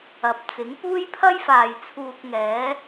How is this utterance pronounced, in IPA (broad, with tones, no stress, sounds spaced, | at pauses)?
ɐ˨ p̚ t͡s ɪ˨˥ ŋ p uː˥ j pʰ ɐ˥ j f aː˨ j t͡sʰ uː˧ k̚ ŋ ɛː˨˥